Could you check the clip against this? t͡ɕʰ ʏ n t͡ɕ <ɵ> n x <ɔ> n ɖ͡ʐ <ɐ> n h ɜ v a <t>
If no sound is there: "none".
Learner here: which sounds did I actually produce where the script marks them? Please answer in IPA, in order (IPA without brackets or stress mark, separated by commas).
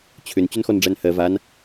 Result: ɵ, ɔ, æ, n